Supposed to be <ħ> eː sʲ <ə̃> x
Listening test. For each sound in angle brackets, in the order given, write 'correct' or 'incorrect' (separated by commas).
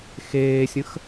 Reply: incorrect, correct